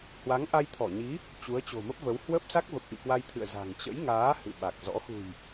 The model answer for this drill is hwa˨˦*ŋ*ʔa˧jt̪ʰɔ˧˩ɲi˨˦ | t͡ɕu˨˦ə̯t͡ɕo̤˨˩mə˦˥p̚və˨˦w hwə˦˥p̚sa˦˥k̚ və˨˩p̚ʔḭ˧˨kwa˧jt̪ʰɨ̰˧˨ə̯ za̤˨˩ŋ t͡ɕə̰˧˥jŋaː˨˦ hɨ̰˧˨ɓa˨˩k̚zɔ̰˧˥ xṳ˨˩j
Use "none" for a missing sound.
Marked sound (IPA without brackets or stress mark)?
ŋ